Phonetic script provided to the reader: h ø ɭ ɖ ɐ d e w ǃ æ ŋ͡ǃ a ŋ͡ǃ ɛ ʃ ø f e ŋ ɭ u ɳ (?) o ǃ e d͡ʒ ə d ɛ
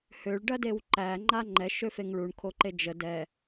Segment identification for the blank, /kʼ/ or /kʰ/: kʰ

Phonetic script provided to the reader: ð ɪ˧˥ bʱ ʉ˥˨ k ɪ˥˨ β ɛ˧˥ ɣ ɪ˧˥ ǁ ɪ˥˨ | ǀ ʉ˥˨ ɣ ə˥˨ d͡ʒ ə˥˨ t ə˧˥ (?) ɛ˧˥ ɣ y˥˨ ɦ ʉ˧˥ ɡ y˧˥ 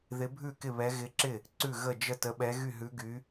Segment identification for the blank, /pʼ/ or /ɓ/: ɓ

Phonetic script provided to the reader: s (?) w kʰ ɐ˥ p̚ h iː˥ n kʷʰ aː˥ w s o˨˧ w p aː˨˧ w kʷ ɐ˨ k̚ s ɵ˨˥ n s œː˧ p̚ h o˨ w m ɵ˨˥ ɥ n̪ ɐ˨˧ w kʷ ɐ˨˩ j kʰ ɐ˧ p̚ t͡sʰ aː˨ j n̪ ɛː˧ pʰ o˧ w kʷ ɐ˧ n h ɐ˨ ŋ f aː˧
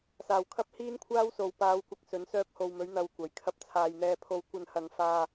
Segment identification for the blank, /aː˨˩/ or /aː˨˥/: aː˨˩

